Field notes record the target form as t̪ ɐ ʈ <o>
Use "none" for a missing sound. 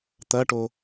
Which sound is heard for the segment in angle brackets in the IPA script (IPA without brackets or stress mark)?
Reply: o